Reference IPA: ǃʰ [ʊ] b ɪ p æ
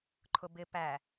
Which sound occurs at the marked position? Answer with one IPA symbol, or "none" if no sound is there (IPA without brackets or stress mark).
ʊ